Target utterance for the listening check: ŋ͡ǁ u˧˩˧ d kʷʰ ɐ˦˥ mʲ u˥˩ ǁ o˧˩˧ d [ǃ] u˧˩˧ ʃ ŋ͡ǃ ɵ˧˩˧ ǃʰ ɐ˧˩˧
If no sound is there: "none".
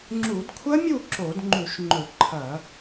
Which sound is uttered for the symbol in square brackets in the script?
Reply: ŋ͡ǃ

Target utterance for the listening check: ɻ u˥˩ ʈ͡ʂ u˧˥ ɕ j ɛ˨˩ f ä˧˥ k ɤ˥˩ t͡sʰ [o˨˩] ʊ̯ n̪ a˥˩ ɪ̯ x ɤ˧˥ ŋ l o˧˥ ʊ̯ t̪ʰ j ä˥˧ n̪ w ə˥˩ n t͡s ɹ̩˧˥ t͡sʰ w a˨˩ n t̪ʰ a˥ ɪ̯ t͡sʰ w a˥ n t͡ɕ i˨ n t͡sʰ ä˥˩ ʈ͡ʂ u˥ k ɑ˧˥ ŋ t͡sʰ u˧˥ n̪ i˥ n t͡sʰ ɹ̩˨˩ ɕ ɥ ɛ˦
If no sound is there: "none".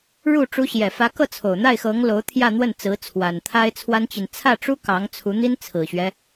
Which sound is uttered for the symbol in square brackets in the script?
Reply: o˨˩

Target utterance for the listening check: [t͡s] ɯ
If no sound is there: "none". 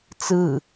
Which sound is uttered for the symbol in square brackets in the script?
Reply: t͡s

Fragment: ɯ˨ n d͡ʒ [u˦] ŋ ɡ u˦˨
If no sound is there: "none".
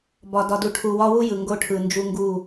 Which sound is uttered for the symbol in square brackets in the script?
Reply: u˦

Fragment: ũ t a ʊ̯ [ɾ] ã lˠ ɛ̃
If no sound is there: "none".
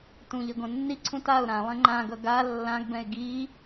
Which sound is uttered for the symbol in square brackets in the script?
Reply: ɾ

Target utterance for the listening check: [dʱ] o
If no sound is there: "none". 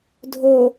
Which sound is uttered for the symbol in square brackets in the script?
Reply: dʱ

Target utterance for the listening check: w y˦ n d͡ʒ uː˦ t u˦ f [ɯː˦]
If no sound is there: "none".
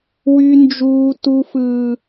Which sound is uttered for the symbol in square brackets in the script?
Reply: ɯː˦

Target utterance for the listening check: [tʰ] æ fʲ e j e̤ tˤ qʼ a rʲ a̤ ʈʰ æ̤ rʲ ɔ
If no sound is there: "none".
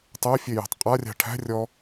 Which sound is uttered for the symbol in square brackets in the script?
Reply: tˤ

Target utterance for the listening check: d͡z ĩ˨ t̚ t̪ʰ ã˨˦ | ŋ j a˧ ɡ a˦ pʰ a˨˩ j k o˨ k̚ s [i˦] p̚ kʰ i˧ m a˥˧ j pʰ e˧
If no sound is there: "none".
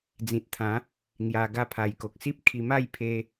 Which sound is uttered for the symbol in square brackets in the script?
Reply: i˦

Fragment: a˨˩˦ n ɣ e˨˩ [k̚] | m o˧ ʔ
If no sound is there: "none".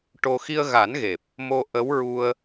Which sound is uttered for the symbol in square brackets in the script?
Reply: p̚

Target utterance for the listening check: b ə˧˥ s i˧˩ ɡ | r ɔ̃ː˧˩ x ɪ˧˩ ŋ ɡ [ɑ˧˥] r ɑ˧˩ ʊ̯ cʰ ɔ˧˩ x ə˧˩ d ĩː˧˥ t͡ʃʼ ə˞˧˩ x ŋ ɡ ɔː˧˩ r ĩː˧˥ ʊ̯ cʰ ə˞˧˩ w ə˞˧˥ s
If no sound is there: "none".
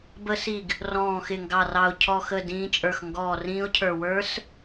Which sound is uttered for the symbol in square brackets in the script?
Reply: ɑ˧˩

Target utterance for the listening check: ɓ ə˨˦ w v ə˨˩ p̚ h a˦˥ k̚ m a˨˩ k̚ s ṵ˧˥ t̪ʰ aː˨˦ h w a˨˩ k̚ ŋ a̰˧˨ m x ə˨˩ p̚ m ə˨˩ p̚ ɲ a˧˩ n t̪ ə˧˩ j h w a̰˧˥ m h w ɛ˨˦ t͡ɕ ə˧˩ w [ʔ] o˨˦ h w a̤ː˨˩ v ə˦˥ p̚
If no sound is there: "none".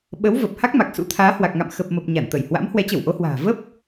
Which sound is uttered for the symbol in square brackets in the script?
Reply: ʔ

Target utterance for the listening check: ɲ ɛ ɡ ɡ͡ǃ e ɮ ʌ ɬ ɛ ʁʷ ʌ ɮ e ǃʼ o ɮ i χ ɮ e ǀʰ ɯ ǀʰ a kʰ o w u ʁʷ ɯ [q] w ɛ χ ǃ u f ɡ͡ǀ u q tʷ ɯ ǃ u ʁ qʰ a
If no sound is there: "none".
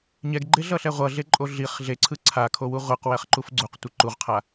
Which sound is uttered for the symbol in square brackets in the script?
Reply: q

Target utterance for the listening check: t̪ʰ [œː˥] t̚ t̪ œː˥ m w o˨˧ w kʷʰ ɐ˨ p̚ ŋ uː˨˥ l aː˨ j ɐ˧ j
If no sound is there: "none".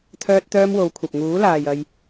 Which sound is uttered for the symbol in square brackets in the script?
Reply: œː˥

